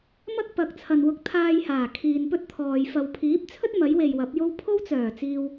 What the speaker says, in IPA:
m ɐ˥ k̚ p ɐ˨ k̚ t͡sʰ ɐ˨ n w ʊ˧ k̚ t̪ʰ aː˧ j h aː˨˩ kʰ iː˨ n p ɵ˥ t̚ t̪ʰ ɔː˨ j f ɐ˨ w pʰ iː˨˥ p̚ t͡sʰ ɵ˥ t̚ m ɐ˨˥ j w e˨ j w ɐ˨˥ p̚ j o˥ w pʰ o˥ w t͡s œː˨˩ t͡s iː˨ w

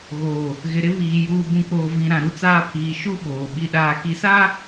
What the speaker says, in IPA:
ɣ oː˨ | ɣ ɪ˨ ɾ ɪ˦ β iː˨ j uː˨ b ũ˨ k͡p oː˨ v ĩ˨ ɾ ã˨ ɾ u˦ t͡s aː˦ pʰ iː˨ ʃ u˦ ɓ oː˨ ɓ i˨ ɗ aː˨ k i˨ s aː˦

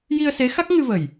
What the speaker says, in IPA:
j i˧ ə̯ s e˧˥ x a˦˥ k̚ ŋ ɨ˧ v ə˨˩ j

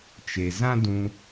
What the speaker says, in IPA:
t͡ʃ e˨ z ã˦ d ũ˧

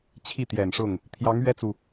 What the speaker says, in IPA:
t͡ɕʰ i˥˩ t̪ j ɛ˨˩ n ʂ ʊ˥˩ ŋ | t̪ʰ j ɑ˧˥ ŋ ɥ ɛ˥ t͡s u˨

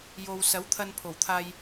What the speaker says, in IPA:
j o˨ w s ɐ˨˥ w t̪ʰ ɐ˧ n pʰ o˨˩ w t̪ʰ aː˧ j

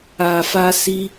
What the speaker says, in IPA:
a˨ f a˧ s i˦

